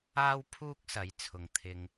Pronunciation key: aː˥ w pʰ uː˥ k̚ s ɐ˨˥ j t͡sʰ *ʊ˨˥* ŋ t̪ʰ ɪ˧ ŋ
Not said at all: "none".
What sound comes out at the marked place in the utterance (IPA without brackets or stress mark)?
ʊ˨